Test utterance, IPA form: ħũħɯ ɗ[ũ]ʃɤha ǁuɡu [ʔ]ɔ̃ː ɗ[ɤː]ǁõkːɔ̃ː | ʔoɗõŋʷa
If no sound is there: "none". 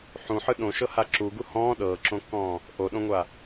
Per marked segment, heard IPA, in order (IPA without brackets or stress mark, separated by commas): õ, h, ɤː